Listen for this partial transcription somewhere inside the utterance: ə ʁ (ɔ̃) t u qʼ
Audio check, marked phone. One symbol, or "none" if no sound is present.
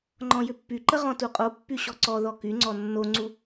ɔ̃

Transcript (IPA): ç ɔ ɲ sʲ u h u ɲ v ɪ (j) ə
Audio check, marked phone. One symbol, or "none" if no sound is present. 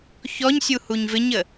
ɲ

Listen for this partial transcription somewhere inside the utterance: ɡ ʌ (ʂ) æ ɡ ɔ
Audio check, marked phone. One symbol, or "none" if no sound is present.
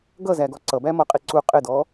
z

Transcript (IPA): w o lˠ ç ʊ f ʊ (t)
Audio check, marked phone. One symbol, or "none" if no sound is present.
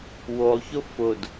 d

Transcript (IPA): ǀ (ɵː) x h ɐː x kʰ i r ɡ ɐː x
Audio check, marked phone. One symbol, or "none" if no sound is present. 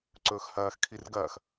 ɵː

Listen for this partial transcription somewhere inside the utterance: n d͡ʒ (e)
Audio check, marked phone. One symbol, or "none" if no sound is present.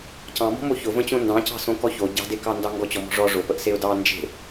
e̤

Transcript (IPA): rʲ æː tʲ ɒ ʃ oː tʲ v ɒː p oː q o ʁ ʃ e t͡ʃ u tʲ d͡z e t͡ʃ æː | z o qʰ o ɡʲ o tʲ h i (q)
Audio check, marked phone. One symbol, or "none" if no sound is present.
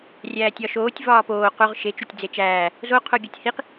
q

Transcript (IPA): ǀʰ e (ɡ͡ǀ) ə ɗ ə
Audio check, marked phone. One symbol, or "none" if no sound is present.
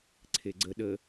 ɡ͡ǀ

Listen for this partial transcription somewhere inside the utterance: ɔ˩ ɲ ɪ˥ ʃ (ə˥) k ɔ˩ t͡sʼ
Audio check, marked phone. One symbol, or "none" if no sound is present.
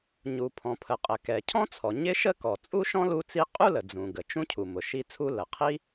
ə˥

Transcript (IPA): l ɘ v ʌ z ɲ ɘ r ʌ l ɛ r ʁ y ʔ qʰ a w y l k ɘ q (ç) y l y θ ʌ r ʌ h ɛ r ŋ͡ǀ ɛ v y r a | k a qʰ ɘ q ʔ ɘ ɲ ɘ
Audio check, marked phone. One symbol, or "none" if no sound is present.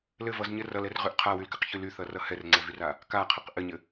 ç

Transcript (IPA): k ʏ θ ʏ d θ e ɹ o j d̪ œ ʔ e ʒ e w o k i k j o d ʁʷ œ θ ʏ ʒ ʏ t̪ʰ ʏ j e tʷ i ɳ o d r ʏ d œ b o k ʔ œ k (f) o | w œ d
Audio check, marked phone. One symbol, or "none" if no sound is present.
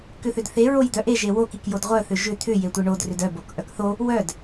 θ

